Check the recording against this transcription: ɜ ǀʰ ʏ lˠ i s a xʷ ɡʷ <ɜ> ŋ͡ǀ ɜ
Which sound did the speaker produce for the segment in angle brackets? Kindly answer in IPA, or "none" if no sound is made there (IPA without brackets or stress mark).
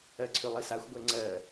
ɛ